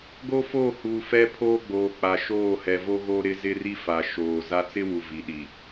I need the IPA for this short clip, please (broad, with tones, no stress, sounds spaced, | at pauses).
ɡ o˦ f oː˦˨ h uː˨ f ɛ˦ pʰ oː˦ ɡ͡b oː˨ k͡p a˨ ʃ oː˦˨ h ɛ˨ v o˦ ɣ o˦ ɾ ɪ˦ z ɪ˦ r i˦ f a˨ ʃ oː˨ z a˦ t͡s ɪ˦ w u˨ v i˨ ɗ i˨